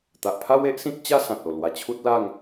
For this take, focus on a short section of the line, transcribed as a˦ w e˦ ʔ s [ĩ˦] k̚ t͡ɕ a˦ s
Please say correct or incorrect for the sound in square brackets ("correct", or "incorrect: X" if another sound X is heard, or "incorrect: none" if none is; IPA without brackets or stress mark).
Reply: correct